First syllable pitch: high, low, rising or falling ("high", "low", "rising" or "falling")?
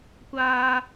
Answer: high